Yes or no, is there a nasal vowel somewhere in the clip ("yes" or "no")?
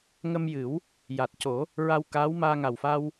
no